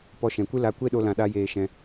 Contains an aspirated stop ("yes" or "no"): no